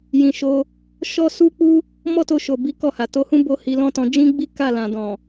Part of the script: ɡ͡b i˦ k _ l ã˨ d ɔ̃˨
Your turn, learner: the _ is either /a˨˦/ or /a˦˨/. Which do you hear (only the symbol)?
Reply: a˦˨